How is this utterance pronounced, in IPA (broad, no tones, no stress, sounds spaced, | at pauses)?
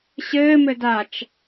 ɕ ɘː m ɘ d a t͡ʃ